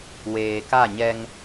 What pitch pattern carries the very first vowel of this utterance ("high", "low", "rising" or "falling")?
low